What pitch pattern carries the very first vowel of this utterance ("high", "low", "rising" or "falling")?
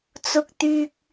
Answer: high